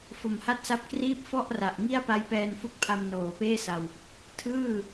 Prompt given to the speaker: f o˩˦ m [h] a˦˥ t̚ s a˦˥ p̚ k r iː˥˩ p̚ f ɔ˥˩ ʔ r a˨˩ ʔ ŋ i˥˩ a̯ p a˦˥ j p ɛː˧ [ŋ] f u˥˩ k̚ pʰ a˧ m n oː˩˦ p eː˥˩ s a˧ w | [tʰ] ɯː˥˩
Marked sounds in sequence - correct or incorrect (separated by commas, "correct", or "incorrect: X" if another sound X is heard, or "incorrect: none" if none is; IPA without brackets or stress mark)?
correct, incorrect: n, correct